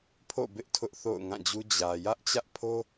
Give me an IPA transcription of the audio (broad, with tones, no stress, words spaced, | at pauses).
pʰo̰˦˨bɪ˦ʔ tʰʊ˦ʔθo̰˦˨ʊ̯ŋã˦˨d͡ʑu˦ d͡ʑä˨ jä˦ʔt͡ɕä˦ʔpʰo˦